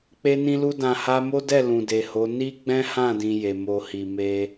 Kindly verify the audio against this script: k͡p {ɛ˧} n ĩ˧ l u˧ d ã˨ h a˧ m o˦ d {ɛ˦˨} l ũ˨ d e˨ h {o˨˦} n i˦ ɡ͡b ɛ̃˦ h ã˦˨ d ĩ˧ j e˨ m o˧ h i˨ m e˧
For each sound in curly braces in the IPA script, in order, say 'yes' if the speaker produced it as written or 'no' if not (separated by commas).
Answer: no, yes, yes